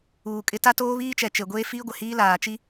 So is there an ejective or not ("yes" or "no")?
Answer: yes